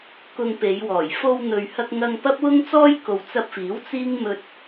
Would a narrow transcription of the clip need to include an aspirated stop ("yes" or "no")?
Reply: no